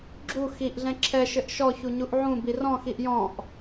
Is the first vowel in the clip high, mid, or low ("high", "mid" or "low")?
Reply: high